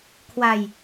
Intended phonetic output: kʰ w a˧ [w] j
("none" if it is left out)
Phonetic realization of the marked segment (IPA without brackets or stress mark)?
none